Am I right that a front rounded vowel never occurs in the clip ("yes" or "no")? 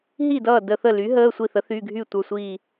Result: no